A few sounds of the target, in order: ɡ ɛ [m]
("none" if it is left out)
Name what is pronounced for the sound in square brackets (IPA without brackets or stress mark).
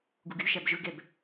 b